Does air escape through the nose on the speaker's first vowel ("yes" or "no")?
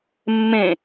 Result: yes